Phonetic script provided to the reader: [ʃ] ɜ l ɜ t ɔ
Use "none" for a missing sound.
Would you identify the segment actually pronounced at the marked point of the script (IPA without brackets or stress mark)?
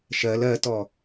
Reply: ʃ